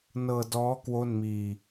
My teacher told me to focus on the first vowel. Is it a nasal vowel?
no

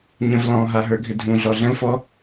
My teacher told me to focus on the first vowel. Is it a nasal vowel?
yes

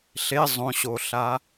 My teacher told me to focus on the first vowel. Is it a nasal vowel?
no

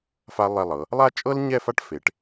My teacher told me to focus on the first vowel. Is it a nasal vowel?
no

